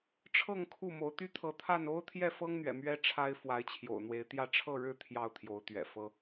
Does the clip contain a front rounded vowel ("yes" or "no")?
yes